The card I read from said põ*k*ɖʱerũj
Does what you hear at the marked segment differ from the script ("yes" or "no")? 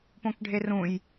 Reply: no